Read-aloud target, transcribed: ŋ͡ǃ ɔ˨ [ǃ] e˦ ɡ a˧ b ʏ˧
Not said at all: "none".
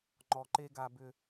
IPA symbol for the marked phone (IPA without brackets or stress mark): ǃ